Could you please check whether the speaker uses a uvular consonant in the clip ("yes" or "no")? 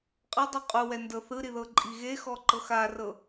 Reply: yes